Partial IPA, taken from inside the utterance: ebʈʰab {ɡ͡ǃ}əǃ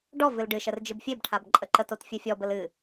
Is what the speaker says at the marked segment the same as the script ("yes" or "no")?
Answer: no